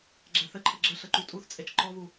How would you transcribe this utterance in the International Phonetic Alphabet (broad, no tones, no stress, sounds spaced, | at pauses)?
ɡ͡ǁ ɛ θ ɘ ǃʰ ə ɡ͡ǁ ə ɬ ə ǃ u tʼ u θ t͡sʼ e t͡ʃ ǃ ɔ β u